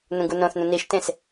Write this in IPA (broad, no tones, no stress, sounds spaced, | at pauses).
n ũ ɡ u n õ θ n ũ n i ʃ t ẽ s